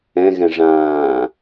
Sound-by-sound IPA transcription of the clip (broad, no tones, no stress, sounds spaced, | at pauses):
ɛ̃ ɣ ɛ̃ ʐ ãː